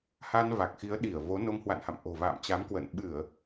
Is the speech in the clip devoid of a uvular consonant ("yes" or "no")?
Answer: yes